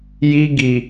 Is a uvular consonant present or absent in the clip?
absent